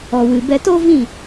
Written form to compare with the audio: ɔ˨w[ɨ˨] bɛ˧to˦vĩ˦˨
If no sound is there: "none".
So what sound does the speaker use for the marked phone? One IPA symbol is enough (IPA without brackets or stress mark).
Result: ɨ˨